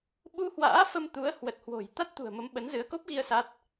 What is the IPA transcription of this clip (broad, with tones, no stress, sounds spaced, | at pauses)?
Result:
ɓ u˧ h w a̰ː˧˥ f ə˧ m t̪ u˨˦ ə̯ h w ə˨˩ t̚ h w o̤˨˩ j t̪ a˦˥ t̚ t̪ ṳ˨˩ ə̯ m ə˨˦ m ɓ ə˨˦ n z ɨ˨˦ ə̯ k o˦˥ p̚ ɣ i˧ ə̯ s a˦˥ t̚